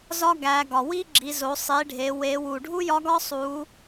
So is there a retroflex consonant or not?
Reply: yes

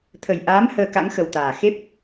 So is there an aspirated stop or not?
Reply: yes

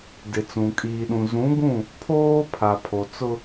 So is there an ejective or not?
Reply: yes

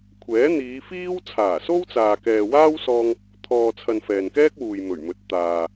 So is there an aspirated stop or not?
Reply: yes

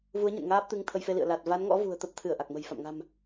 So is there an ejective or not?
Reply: no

